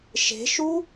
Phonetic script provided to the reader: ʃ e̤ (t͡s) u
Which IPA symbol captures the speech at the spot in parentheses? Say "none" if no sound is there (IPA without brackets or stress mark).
ʃ